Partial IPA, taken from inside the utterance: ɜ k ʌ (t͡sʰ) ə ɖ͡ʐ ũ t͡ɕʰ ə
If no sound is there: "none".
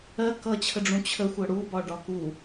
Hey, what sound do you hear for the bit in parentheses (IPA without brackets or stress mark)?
t͡ɕʰ